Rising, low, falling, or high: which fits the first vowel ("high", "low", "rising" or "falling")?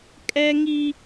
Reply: high